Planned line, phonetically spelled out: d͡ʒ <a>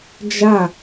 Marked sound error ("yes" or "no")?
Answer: no